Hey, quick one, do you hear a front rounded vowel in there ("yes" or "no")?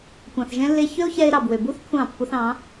yes